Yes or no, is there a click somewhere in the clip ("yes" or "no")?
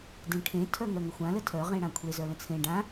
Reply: no